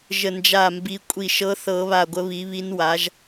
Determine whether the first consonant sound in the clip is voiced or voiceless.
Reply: voiced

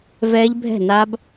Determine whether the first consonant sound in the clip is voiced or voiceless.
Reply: voiced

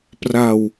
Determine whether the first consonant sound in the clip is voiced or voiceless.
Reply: voiceless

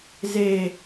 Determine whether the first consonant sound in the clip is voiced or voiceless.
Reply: voiced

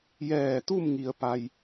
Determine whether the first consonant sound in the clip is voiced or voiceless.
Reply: voiced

